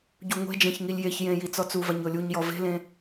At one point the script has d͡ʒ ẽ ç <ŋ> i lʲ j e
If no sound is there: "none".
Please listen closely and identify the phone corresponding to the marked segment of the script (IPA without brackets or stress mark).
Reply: ŋ